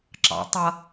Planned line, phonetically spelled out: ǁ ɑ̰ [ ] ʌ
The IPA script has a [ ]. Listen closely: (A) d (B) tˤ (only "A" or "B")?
B